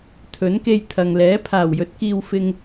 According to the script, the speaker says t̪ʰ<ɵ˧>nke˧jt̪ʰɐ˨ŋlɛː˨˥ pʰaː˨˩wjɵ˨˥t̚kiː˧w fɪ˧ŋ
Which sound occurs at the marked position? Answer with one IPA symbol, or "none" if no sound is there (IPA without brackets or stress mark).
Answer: ɵ˨˥